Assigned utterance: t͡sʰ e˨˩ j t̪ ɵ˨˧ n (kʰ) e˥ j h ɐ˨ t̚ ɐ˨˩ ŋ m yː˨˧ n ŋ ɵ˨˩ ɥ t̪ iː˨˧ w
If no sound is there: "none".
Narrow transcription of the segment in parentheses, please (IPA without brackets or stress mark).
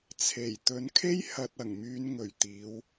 kʰ